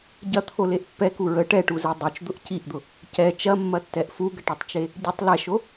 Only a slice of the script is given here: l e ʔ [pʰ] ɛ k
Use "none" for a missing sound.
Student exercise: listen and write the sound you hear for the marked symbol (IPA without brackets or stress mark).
pː